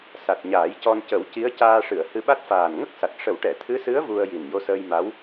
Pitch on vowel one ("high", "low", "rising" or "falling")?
low